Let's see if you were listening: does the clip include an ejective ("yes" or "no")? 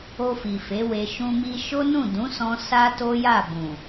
no